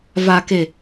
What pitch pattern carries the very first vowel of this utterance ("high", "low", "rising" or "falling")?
low